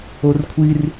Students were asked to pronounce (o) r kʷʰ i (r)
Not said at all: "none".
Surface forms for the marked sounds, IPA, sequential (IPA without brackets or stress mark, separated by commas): o, r